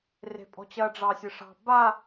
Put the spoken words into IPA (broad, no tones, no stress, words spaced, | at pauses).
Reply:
re̤pʼɔ̤t͡ɕɐ ɖ͡ʐɑsʲɨʂɑ̤ ba